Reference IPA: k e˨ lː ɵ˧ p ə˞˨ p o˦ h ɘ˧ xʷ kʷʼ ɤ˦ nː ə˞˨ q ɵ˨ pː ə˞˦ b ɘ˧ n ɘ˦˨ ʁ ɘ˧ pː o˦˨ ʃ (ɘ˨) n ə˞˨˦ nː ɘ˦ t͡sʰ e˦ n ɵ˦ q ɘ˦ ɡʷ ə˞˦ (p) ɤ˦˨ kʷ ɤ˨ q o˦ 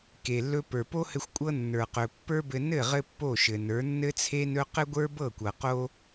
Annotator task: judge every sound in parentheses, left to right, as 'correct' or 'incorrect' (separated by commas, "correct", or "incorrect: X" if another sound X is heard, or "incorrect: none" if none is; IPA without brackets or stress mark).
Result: correct, incorrect: b